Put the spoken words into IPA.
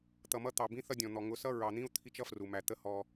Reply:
t̪ʌ˨mʌ˦t̪ɑ˨bĩ˦ θʌ˦dʲɔ̃˨n̪ɔ˨ ŋʊ˨˦sʌ˦ɹɑ˨n̪ĩ˦u̯ t̪ʰi˦t͡ʃʌ˦fru˨mæ˨ t̪ə˦ hɔ˦

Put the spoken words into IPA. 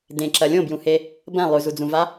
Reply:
dẽǁɐ lʲõbjũhe | bɐ̃ lˠʉzud͡zũva

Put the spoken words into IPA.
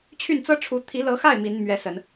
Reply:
t͡ɕʰy˥˩nt͡sɤ˥ʈ͡ʂʰu˧˥ t̪ʰi˧˥lɤ˧˥xa˥˩ɪ̯ mi˧˥n mɥɛ˧˥sə˨˩˦n

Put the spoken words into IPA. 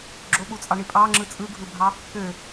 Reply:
ɡ͡ǁoɓut͡sʼɑɳi pʼɑŋ͡ǁɯ t͡sʼɯɡʱɯbʱɑ | kø

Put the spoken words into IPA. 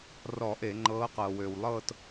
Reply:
rɔ˧˩˧ʔe˧˩˧ŋ͡ǃɤː˨˦ qɤː˩wøː˩wlˠɤː˦˨t

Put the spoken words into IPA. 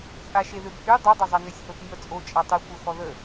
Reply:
t͡sʼaʃeðøbhy dˤu dˤezˤanøsʲ hoθnʲɔ t͡sʼo t͡ʃʼatˤi kʷœxɔðə

